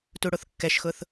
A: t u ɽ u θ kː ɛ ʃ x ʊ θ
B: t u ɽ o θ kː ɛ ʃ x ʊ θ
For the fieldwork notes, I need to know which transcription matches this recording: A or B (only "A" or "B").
B